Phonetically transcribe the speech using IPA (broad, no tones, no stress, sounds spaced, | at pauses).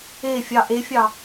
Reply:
e fʲ ɑ ʔ e fʲ ɑ